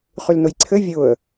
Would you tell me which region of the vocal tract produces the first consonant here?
uvula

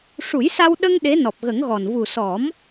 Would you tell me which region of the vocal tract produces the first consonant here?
retroflex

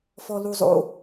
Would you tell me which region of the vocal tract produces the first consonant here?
lips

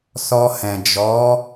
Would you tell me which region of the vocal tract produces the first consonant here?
tongue tip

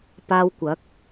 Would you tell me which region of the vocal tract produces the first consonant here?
lips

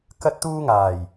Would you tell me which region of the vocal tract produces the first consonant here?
velum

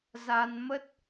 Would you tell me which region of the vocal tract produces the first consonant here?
tongue tip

